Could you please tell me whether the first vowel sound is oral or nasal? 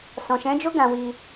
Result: nasal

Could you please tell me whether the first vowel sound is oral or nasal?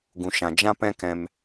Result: nasal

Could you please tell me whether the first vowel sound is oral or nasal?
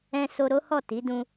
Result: nasal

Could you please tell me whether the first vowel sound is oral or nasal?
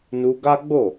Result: oral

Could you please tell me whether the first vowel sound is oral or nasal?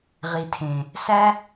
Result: oral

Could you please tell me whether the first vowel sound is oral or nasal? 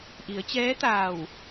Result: oral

